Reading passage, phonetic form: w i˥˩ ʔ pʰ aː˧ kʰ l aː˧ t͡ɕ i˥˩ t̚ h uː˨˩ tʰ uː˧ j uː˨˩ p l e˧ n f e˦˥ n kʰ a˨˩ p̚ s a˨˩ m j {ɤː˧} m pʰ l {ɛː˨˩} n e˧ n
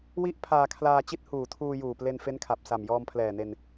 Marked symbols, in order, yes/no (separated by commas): no, yes